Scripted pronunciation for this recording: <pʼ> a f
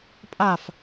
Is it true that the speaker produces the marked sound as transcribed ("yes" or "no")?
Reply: yes